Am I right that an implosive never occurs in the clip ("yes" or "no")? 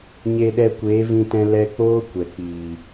no